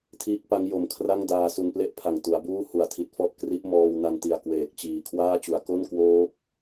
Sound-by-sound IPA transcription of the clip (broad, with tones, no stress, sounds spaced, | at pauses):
tʰ iː˦˥ k̚ p a˦˥ ŋ j o˨˩ m kʰ r a˥˩ ŋ d aː˧ s u˧ n p l e˥˩ ʔ pʰ a˨˩ ŋ t u˩˦ a̯ b uː˥˩ h u˨˩ a̯ tʰ i˨˩ t̚ f ɔ˥˩ ʔ k r i˦˥ ʔ m ɔː˧ w n a˧ n t i˨˩ a̯ k w eː˨˩ k̚ t͡ɕ iː˨˩ kʰ w aː˥˩ t͡ɕ u˩˦ a̯ k o˥˩ n k w oː˦˥ p̚